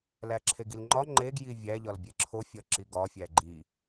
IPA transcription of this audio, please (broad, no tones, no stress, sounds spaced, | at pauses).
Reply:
l æ ǁʰ e ɡ i l ŋ͡ǃ ɒ ŋ͡ǃ e ɡ j i vʲ æ ʎ ɒ l bʲ e ǁʰ o fʲ ɒ ǁ i ɡ ɒ fʲ æ ɡ͡ǃ i